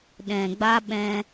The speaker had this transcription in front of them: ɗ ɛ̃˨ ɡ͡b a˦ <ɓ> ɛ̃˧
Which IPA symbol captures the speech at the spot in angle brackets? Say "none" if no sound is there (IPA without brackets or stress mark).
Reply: ɓ